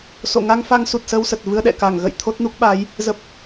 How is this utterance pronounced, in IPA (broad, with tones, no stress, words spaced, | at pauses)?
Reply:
so̰˧˨ ŋa˧ŋfa˧ŋsu˨˩t̚ sə˧wsə˨˩t̚ vɨ˧ə̯ɗɛ̰˧˨ka˧˩ŋɣə̰˧˨j t̪ʰo˦˥t̚nu˦˥k̚ɓa˨˦j | zə˨˩p̚